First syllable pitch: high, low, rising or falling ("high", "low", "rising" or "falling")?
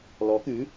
rising